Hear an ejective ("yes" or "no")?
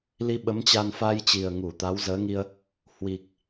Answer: no